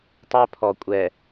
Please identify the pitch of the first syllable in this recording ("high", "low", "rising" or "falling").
high